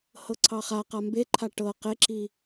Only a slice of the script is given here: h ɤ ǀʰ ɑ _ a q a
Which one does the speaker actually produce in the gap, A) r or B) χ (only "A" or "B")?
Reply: B